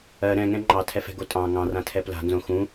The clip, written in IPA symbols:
ɜ ɾ ɛ̃ ŋ ɛ̃ ŋ͡ǃ ɑ tʰ ɛ f ɛ̤ ɡ o tʼ ɑ̃ ŋ ɑ̃ r ã tʰ ɛ p l a̤ n z õ x ũ

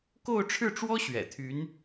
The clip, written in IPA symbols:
k o˥˧ ʊ̯ ʈ͡ʂʰ ɻ̩˥˩ ʈ͡ʂ w ɔ˥ ɕ ɥ ɛ̰˨˩ t̪ʰ y˧˥ n

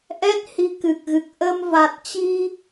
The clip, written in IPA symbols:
ʔ ɛ˦˥ t̚ h i˧ k ɨ˨˩ k̚ ɣ ɨ˨˩ k̚ ʔ ə˧ m v a˨˩ t̚ t͡ɕ i˧

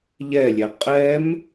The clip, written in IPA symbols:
ʎ ɛ lʲ ɛ qʼ ɛ m

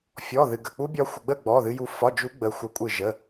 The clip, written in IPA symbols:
fʲ ɔ˧˥˧ ð ɨ˧ ɡ ə˧˥˧ k͡p u˦˥ bʲ ɒ˦˥ xʷ ə˧ ɡ͡b ə˥˧ ɡ͡b ɔ˧˥˧ ð ɨ˦˥ j u˦˥ f ɒ˧˥˧ d͡ʒ u˦˥ ɡ͡b ə˦˥ xʷ ə˦˥ kʷʼ ɨ˥˧ ʒ ə˧˥˧

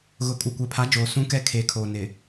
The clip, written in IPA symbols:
ɣ ʊ˨ kʼ u˨ kʷ ɛ˨ pʰ a˨˦ d͡ʒ oː˨ s ũ˦ k ɛ˦ kʰ eː˨ kʰ oː˨ n ɪ˨

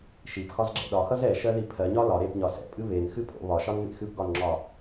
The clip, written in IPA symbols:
ʃ i p x ɒ z ɡ͡ǁ ɛ̰ ɗ ɒ x ʌ z ɛ ʃ ɜ ð i pʰ ɜ ɲ ɒ l ɒ ɾ e p ɲ ɒ s ɛ̰ pʼ ɨ β e n x ɨ pʼ o̰ β ɒ ʃ ɒ n m ḛ x ɨ p ɡ ɒ n ŋ͡ǁ ɒ

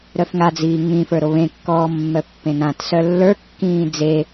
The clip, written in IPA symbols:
ɾ œ f ŋ a d͡z iː ŋ ĩ f ə˞ ɾ o β ẽ kː ɔː mː œ pː ẽ n ã t s œ lː ə˞ kː ĩː d͡z e

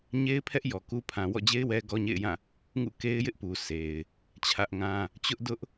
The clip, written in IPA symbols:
ɲ e˦ ɪ̯ pʰ ɛ˦ ʔ j ɔ˨ k u˦ pʰ ã˨ w ɔ̰˦˨ d͡ʑ e˦ ɪ̯ w ɛ˦ ɡ ɔ˦ ɲ ḛ˦˨ ɪ̯ j ã˦˨ | ŋ ṵ˦˨ k e˦ ɪ̯ j ɪ˦ ʔ p u˨ sʰ e˨ ɪ̯ | t͡ɕʰ ä˦ ʔ ŋ ã˦ | t͡ɕ ʊ˦ ʔ d ʊ˦ ʔ

